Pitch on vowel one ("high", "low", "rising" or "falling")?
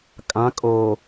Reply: rising